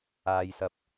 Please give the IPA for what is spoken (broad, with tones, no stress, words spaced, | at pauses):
aː˨jsɐ˨˥p̚